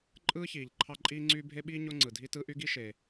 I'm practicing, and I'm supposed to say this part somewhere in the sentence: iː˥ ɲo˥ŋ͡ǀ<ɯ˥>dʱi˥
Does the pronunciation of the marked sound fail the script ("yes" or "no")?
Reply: yes